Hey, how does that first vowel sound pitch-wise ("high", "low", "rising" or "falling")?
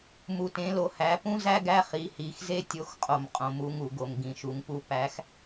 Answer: low